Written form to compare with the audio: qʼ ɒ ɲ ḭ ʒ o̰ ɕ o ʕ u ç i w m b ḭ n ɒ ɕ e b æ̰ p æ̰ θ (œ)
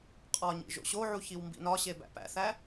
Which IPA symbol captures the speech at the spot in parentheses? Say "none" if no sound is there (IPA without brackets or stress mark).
æ